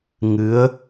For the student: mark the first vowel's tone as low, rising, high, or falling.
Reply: rising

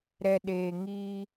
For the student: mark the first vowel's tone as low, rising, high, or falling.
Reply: low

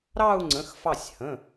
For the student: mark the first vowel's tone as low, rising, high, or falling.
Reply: falling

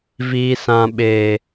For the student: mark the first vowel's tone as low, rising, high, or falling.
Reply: low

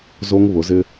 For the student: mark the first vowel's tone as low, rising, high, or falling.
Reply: high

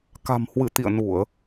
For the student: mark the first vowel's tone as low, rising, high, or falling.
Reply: low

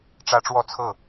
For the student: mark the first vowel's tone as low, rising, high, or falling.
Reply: high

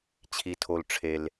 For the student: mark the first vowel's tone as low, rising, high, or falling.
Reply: low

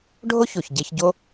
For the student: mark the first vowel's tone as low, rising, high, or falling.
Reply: high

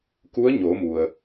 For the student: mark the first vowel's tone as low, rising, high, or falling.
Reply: rising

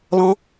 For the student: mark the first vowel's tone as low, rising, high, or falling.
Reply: rising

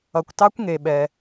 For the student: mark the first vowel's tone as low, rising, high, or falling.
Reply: low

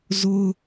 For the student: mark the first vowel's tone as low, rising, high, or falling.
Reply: high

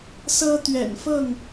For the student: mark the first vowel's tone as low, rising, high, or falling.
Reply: high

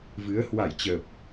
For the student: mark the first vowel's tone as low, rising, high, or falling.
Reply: rising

